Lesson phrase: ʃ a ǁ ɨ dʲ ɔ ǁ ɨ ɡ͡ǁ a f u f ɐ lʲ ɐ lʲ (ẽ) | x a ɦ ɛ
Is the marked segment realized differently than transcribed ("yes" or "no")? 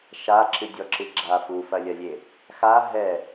yes